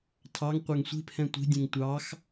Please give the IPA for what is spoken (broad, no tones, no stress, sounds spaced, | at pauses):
tʰ ɑ ŋ qʷ ɛ ŋ sʷ i̤ pʰ ɛ̃ tʷ i̤ dʲ ẽ ŋ tʷ ɑ x